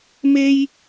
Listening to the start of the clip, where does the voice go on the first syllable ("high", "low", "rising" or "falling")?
high